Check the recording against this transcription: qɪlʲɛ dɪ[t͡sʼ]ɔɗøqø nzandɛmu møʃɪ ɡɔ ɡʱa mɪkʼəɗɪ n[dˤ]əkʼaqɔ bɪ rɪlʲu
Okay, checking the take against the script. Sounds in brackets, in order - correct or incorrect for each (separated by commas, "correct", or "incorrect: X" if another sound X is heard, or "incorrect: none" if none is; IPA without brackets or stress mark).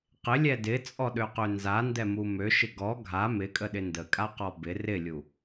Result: correct, incorrect: d